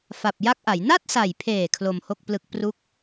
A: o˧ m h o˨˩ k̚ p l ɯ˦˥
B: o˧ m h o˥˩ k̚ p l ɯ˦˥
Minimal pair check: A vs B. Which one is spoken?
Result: B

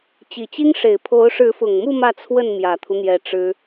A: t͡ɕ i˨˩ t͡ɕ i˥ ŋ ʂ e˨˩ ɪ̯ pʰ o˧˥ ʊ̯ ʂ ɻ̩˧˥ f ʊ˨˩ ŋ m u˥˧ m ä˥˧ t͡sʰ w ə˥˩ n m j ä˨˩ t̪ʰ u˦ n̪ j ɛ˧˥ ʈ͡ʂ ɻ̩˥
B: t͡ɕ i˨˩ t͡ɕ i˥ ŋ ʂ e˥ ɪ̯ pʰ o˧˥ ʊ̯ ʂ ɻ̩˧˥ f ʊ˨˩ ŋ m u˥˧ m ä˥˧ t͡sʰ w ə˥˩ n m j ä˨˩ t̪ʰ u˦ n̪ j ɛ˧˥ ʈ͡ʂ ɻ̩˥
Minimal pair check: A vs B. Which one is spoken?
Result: A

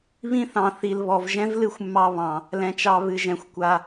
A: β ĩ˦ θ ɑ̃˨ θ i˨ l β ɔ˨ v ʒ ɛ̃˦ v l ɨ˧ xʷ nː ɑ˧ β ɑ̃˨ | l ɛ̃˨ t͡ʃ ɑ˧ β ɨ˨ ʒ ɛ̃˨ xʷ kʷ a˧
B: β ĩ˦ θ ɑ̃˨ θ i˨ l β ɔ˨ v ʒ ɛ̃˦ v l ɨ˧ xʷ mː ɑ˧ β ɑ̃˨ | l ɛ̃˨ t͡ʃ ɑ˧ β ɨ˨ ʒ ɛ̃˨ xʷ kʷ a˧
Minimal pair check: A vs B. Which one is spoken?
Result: B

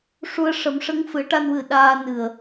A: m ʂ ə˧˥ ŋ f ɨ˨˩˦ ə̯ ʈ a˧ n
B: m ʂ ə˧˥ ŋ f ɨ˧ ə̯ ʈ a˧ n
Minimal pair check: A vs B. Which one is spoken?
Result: A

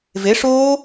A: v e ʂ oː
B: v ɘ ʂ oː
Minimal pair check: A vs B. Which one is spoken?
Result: A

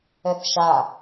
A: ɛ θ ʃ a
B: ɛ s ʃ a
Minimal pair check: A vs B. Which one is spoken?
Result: A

